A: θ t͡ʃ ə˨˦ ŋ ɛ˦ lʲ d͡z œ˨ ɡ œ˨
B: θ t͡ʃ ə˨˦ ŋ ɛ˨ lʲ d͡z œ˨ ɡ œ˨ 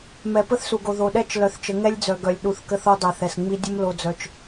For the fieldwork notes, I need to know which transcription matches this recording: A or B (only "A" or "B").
A